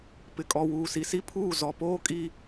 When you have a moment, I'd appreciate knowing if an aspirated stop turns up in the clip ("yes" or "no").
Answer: yes